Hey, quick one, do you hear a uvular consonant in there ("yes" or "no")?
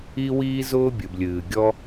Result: no